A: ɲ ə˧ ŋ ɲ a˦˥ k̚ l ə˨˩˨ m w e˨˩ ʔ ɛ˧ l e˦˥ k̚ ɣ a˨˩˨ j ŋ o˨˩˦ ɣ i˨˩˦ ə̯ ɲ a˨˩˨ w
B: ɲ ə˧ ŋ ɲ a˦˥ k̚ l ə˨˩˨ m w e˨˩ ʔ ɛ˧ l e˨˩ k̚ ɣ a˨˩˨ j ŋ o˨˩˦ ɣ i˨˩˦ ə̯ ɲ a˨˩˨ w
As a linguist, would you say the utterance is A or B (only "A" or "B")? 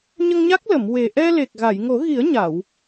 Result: B